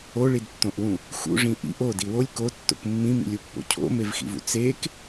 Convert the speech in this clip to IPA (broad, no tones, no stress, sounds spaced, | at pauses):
o ɭ i d tː õ ʔ w ũ | x ṵ ʐ ĩ ʔ ḭ ʔ o d i w o lʲ k o tː o̰ k mː ĩ m ḭ lʲ u pː o̰ cʰ o̰ m e v x ḭ v ṵ t͡s e k